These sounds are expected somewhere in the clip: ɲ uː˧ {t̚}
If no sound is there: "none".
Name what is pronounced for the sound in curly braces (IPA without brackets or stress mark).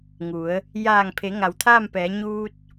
t̚